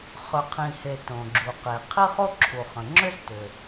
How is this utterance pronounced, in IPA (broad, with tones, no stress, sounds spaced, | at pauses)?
χ ʏ˩ qʰ ĩ˩ h e˩ t õ˩ ɡ͡ǁ u˩ q e˩ qʰ i˥ χ o˥ ǁʰ u˩ χ ə̃˩ ŋ͡ǁ ʏ˥ z t ʏ˩